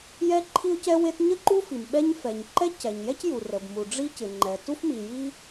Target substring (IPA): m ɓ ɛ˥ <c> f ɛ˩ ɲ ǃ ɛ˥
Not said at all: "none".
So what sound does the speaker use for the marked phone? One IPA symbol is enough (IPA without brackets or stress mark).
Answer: ɲ